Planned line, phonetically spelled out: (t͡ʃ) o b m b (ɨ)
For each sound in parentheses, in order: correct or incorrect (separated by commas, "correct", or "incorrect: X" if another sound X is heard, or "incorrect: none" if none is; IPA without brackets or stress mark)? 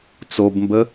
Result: incorrect: t͡s, incorrect: ə